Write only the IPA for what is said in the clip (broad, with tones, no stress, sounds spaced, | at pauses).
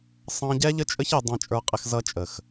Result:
sˤ ɑ̃˦ ɟ ɛ˦ ʎ ə˦ t͡ʃʼ ə˦ ç ɛ˧ dˤ ɑ̃˧ t͡ʃʼ ə˞˧ qʼ ɪ˧ x z ʌ˧ t͡ʃʼ ə˨ x